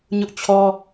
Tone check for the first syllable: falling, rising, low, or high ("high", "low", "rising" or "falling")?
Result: high